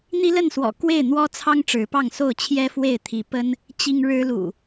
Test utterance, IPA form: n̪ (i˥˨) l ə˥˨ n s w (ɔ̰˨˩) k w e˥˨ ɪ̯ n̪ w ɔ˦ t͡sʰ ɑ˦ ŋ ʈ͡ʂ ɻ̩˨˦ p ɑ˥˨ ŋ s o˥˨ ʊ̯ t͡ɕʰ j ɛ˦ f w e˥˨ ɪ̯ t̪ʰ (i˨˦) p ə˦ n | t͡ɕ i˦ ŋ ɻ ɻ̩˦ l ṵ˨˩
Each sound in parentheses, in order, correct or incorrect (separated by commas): incorrect, correct, correct